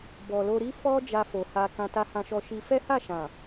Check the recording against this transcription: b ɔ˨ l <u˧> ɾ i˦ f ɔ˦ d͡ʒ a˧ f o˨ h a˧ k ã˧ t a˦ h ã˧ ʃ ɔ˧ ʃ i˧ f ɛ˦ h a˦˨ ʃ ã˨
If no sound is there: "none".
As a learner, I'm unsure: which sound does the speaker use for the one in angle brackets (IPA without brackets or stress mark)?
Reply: o˧